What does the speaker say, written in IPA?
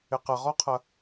ɪ q ɐ ʁ ɔ qʰ ɐ

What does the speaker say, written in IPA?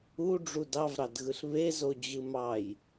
u ɖ͡ʐ u d ɑ v ɾ ɑ d ɣ ɯ ɬ β e z o d͡ʑ ɯ m ɑ j

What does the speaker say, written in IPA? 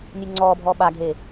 nʲ ɨ ŋ͡ǀ ɔː bʱ ɔ ɓ a ɡʱ e

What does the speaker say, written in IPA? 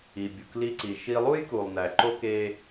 i˨ bʲ u˨ k l i˧ ǀ i˨ ʃ i˧ lˠ u˦ j k u˨ lˠ n æ˨ ǃ o˦ k e˦

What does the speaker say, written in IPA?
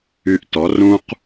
y˧ ʔ t ɔ˨˦ r ũ˦ q

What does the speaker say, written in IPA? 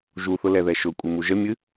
ʒ u θ ʊ l ɛ ð ɛ ʃ ʊ kʷʼ ɨ m u ʒ ə mʲ ɨ

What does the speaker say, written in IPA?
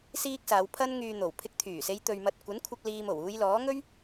s iː˥ k̚ s aː˨˧ w pʰ ɐ˥ n ŋ yː˧ n̪ o˨˩ w pʰ ɪ˧ k̚ t̪ʰ yː˨˩ s e˨˧ j t̪ ɵ˨ ɥ m ɐ˧ t̚ kʷ ɐ˨˥ n kʷʰ ɐ˧ k̚ l iː˨ m o˨˩ w uː˨˧ j l ɔː˨˥ ŋ ɵ˥ ɥ

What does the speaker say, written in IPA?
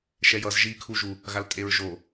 ʃ ɛ j ʌ z ʒ i kʰ u ʒ u | ɣ a l tʼ e ɹ ʒ o

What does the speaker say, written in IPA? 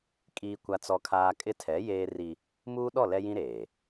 kʼ iː˦ kʷ a˦ t͡s ɔ˦ kʰ aː˦ kʼ ɪ˦ tʰ ɛ˨˦ j eː˦ r i˦ | m uː˦ ɗ ɔ˦˨ l ɛ˦ j ĩ˦ ɾ eː˨

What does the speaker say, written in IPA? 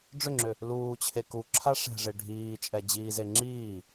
ɖ͡ʐ ʏ ŋ͡ǁ ʏ | l uː t͡ɕʰ e k u ǁʰ a ʂ ɛ̤ ʐ e ɖʱ iː t͡ʃʼ ɛ d͡ʑ iː z e ŋ͡ǁ iː

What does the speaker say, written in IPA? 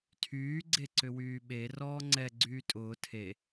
tʰ yː ɡ͡ǀ e ǀ ʏ w yː ɓ e r ɔː ŋ͡ǀ ɛ ɡ͡ǀ yː tʼ ʊː tʰ e

